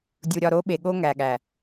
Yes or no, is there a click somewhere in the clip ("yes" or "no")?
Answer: no